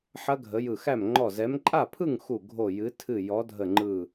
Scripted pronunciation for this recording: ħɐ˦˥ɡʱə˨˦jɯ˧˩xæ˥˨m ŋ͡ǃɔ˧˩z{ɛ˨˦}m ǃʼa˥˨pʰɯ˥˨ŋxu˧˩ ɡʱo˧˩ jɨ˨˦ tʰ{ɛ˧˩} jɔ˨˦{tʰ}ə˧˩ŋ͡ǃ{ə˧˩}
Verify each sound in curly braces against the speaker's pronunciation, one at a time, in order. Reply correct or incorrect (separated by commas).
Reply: correct, incorrect, incorrect, incorrect